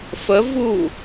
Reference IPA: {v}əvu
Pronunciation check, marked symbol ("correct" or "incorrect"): incorrect